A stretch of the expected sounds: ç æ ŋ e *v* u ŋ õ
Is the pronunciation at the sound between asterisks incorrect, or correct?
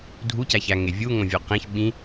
incorrect